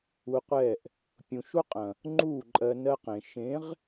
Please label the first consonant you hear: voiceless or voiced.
voiceless